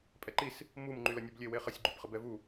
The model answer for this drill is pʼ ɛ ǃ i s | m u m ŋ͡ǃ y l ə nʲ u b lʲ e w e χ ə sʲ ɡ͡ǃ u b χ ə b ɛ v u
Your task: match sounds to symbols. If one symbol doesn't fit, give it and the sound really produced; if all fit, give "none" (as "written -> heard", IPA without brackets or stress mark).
none